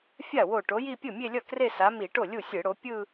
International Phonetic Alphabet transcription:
fʲ a˥˩ w o˧˩ ʈ o˨˥ j i˥˧ pʲ ɯ˥˩ mʲ e˥˧ lʲ ʌ˥˩ k r e˥˧ s a˨˥ m i˧˩˧ ʈ o˥˩ lʲ u˥˩ sʲ ɯ˧˩˧ ɽ o˨˥ pʲ ɯ˥˧

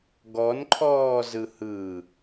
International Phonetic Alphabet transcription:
ɡ ɔ n ǃʰ ɔː z ɯ h ɯ

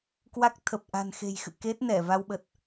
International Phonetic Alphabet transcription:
k w a˦˥ k̚ t̪ʰ ə˨˩ p̚ ʔ a̤˨˩ n x e̤˨˩ j x ɨ̰˧˨ k e˦˥ t̚ n ɛ˧˩ v a˧ w ɓ ə˨˩ t̚

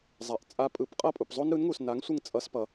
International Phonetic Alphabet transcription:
zˤ a˩ ʔ t͡sʼ a˧ pʼ ɯ˩˥ p qʼ ʌ˥˩ pʼ u˩ p zˤ o˥ n ɾ ɯ˩˥ n ŋ u˩ s n a˩˥ ŋ sʷ ɯ˥˩ ŋ t͡sʼ ʌ˧ s p ʌ˩

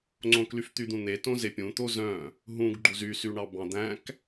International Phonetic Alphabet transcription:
ŋ͡ǀ õ k l y f t̪ y d̪ ũ n̪ e t õ z e pʲ ũ t̪ o z œ̃ | ɦ ũ ɡ ɡ͡ǃ u z y s y ɳ ɑ b ɑ̃ d̪ æ̃ k

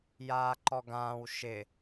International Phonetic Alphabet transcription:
j aː ǃ ɔ ɡ ãː w ʃ ɪ

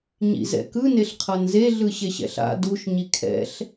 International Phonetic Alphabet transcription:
ɲ ḭ z ɛ̰ k ɯ n e ɬ qʰ ʌ n z e ɮ ɯ ɕ e ɕ ɛ̰ ɬ a̰ d u ʃ ɲ i kʰ ɛ̰ ɬ

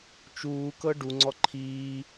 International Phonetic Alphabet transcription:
t͡ʃ uː k ɤ ɖ u ŋ͡ǀ ɔ ǃʰ iː

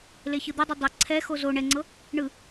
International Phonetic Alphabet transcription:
l e ç ɯ d̪ ɯ dˤ o dˤ ə ǀʰ ɛ x o z o ɳ ɛ ŋ͡ǀ ɤ | ɳ ɯ

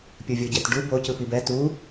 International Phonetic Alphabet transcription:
pʲ ɯ vʲ o ɟ ɛ t ɖ u b o c ɯ p i b ɛ t u

